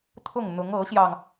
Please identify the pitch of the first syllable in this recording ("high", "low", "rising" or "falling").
falling